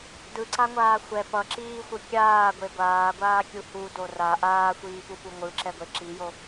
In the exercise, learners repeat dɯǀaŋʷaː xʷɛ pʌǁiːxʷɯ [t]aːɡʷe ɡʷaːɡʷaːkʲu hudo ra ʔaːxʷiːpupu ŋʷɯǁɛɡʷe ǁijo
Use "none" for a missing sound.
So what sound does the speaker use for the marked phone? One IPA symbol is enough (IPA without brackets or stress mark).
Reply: kʲ